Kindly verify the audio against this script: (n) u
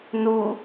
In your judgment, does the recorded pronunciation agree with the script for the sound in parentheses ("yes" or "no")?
yes